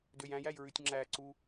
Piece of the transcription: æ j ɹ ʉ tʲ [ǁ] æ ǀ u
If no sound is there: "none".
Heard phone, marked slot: ŋ͡ǁ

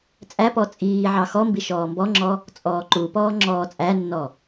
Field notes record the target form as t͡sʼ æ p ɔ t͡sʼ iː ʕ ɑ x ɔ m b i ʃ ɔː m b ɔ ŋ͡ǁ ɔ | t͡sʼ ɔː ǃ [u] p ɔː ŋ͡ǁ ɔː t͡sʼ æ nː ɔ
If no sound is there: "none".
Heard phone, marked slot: u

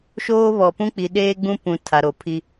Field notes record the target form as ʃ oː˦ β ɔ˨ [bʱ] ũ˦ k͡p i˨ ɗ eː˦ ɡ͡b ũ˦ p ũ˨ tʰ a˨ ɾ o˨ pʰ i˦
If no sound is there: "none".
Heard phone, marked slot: p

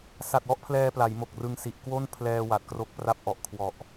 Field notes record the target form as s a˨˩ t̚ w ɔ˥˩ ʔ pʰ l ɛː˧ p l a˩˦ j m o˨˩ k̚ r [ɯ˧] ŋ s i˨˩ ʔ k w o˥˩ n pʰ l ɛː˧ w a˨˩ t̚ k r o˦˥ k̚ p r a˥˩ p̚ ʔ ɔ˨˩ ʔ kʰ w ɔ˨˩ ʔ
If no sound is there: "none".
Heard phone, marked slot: ɯ˧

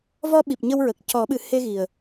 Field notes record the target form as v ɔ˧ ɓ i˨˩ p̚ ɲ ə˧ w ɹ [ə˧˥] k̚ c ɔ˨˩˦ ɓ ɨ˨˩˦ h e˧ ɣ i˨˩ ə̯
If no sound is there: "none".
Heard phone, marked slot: ə˨˩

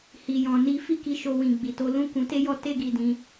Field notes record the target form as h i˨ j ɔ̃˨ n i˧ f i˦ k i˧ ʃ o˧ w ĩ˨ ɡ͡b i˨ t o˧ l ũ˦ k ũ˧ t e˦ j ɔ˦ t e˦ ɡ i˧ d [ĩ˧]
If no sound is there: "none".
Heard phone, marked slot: ĩ˧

